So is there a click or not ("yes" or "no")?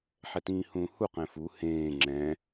yes